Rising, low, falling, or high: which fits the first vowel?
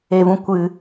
low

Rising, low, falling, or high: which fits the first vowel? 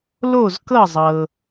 falling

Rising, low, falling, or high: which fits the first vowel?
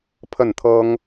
falling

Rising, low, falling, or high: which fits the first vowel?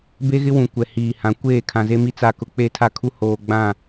high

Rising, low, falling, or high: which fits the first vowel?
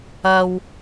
low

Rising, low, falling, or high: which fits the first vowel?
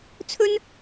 high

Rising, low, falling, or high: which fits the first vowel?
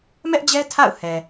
high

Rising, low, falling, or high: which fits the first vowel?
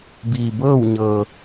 low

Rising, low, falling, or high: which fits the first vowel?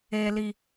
high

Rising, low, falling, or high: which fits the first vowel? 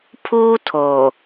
high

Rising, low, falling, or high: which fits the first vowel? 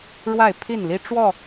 falling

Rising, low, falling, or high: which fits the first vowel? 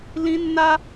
high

